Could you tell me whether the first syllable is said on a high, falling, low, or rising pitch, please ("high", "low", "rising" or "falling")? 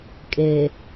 low